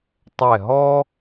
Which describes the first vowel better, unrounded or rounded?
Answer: unrounded